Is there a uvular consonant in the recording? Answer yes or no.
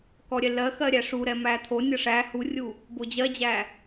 no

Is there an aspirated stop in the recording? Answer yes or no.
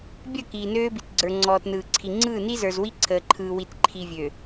yes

